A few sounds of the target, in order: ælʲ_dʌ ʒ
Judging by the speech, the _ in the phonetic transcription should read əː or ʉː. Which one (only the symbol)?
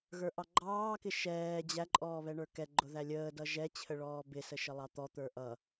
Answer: əː